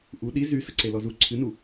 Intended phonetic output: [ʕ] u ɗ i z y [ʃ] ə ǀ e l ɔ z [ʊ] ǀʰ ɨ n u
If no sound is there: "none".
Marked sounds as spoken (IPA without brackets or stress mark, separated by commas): ʔ, s, u